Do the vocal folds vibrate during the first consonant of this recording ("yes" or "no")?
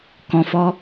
no